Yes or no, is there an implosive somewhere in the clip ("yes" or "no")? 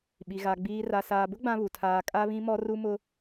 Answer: yes